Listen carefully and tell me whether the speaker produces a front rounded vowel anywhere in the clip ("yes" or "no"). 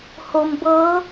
no